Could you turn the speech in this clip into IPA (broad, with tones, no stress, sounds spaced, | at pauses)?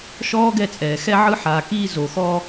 ʃ ɔː˦ ɡ ɛ˧ t͡sʼ ɛː˨ x ɛ˧ ʕ ɯ˧ ħ aː˨ k iː˧ z o˨ x ɔ˧